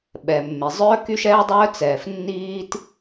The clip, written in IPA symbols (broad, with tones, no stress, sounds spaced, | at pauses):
ɓ ɛː˩ mː e˩ zˤ œː˧ k y˧ ʃ ɛː˧ dˤ œː˧ t͡s ɛː˩ f nː iː˧ t